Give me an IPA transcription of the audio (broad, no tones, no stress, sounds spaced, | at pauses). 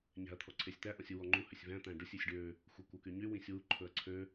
ɲ æ̤ ɐ̯ t̪ʰ ɔ ǀʰ e sʲ t̪ æ ʔ ɔ̃ sʲ u w ɔ ŋ͡ǃ u h ø sʲ v æ̃ t̪ æ̃ ɖ ɵ sʲ ʉ sʲ ɖ ø | xʷ e kʷ œ k y ɲ y w ĩ sʲ w u ǃʰ ɵ ɐ̯ ǀʰ ø